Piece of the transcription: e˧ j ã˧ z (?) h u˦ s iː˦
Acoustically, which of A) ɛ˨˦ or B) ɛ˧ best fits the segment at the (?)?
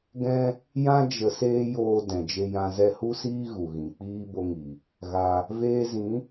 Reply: B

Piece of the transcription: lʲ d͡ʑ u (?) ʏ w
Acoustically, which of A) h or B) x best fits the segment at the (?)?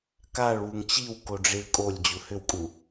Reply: A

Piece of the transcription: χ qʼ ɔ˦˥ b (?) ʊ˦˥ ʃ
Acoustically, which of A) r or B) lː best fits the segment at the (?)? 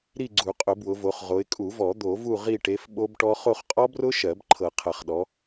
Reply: A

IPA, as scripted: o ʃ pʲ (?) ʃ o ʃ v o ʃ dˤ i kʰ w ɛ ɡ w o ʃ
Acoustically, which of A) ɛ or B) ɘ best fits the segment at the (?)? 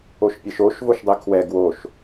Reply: A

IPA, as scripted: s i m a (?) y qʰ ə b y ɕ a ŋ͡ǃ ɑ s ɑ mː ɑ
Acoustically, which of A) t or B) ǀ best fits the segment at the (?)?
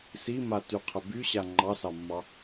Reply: A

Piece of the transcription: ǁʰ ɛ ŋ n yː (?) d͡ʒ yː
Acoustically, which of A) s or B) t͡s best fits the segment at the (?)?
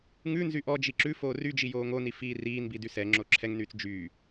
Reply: B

